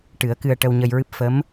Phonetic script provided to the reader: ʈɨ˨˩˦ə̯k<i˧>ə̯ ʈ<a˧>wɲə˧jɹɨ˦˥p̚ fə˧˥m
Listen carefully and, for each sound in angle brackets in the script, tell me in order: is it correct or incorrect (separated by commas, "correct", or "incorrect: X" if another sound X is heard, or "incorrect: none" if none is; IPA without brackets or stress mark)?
incorrect: ɨ˧, incorrect: ə˧